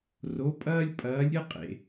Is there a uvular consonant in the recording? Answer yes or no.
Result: yes